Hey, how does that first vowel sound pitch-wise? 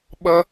high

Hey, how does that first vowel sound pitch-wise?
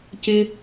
high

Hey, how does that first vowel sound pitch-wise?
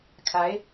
rising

